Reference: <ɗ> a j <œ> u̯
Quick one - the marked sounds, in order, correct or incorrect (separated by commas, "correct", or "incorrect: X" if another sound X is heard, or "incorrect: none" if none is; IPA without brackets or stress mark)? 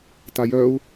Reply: incorrect: t, correct